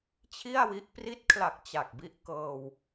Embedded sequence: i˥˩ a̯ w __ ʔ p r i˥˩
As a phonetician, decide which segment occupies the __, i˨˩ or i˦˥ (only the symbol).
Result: i˦˥